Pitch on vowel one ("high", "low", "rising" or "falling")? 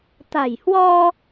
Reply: low